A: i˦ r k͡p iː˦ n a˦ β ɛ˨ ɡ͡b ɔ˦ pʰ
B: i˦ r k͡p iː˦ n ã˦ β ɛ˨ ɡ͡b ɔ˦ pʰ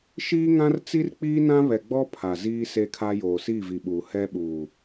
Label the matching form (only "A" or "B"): B